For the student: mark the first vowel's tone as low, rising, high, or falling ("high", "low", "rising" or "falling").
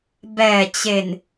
low